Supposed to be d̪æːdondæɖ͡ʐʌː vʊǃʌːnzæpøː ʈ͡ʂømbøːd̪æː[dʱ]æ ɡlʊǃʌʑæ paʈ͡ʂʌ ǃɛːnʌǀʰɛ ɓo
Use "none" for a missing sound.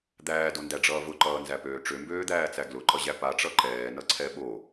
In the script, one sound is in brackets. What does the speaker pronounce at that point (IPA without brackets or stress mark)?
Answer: t͡s